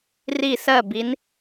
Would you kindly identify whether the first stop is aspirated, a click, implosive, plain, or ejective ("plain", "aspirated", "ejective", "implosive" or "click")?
plain